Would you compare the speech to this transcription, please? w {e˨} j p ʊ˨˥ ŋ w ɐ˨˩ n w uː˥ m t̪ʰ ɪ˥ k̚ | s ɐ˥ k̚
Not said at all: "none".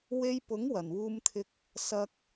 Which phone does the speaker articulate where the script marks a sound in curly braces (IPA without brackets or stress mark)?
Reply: e˧